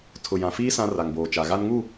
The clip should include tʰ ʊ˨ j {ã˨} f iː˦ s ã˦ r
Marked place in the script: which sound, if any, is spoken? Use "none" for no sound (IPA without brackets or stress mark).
ã˨